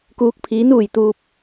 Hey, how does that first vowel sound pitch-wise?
rising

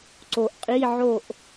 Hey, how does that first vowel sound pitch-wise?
low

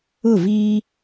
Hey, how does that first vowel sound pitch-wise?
falling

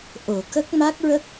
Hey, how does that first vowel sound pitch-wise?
low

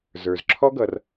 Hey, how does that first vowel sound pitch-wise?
low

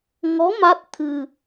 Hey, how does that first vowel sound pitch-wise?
rising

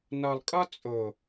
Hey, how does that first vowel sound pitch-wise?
low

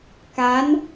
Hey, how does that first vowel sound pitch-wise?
rising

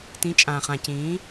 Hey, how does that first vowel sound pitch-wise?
rising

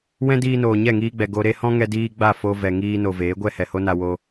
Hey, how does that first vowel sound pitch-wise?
high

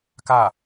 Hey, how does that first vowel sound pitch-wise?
falling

